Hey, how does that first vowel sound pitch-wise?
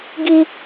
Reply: high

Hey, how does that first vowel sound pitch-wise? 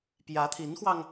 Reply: rising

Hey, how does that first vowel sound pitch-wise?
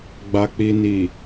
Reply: low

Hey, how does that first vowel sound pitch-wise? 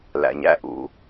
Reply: low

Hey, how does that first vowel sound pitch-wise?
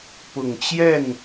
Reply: low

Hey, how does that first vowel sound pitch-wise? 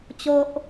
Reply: high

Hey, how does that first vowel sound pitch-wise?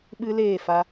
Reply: high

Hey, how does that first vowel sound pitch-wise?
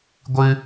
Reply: high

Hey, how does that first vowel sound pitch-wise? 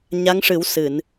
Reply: rising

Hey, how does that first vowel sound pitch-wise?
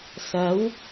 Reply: rising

